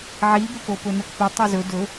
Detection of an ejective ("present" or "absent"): absent